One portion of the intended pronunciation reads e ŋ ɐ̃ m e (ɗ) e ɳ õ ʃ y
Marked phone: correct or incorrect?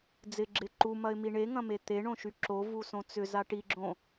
incorrect